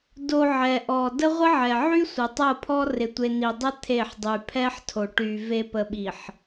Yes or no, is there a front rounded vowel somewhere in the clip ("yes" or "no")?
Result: yes